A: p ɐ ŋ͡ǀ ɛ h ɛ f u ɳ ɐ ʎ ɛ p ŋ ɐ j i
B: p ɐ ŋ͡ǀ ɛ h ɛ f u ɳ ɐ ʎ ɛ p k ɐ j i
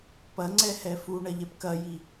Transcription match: B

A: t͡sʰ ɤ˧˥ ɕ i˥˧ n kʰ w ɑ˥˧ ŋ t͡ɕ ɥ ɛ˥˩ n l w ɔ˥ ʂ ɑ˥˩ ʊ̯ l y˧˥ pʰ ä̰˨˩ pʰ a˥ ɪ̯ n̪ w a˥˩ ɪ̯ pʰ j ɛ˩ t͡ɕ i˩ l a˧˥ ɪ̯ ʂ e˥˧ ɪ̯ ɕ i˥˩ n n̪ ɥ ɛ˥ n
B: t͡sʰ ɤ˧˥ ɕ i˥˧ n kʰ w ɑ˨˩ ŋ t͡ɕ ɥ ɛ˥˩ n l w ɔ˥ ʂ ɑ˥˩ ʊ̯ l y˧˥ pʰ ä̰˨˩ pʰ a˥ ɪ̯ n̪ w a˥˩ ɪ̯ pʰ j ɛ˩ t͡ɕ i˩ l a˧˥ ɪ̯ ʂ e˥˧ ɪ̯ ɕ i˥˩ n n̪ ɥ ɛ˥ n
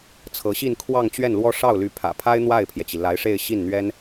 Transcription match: A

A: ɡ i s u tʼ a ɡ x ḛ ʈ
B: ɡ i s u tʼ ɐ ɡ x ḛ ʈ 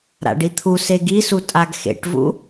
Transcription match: A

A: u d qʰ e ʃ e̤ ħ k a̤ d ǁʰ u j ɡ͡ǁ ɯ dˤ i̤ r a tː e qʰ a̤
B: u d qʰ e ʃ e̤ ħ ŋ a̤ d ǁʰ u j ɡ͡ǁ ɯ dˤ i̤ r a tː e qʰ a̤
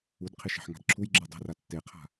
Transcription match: B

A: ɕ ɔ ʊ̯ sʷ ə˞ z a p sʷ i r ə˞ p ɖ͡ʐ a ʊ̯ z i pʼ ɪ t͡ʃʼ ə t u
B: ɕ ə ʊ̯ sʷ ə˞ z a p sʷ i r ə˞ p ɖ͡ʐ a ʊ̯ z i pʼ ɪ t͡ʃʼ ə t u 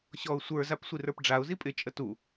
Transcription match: A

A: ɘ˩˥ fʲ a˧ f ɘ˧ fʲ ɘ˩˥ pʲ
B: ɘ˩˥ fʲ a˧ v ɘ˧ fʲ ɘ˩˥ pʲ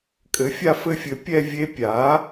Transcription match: A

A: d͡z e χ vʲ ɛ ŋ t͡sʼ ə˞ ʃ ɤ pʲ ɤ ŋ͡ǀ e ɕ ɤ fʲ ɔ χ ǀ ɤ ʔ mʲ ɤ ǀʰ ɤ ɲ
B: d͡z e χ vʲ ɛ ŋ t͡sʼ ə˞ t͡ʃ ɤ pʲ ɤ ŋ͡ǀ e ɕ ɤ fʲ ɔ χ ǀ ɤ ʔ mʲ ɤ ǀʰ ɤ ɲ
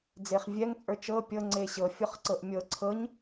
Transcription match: B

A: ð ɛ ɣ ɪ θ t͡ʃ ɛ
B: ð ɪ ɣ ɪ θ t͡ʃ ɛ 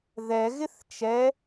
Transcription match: A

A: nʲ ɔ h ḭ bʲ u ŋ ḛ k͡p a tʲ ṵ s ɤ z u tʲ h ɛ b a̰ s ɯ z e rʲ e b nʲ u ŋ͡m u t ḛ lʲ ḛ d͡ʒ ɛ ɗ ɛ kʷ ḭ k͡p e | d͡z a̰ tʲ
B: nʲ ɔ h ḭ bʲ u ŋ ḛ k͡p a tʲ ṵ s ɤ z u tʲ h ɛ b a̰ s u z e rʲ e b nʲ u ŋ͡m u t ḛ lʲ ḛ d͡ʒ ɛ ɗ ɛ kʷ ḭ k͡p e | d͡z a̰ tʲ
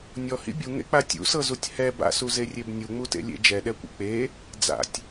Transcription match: B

